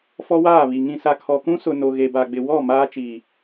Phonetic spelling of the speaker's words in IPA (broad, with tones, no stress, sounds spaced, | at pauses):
f ɔ˦ w aː˦˨ β i˨ ŋ ĩ˨ s a˨ kʰ ɔ˨ k ũ˦ s ʊ˨ n o˨ ɣ e˨ b a˨ ɡ͡b ɪ˨ w ɔ˦˨ m aː˦ t͡ʃ iː˨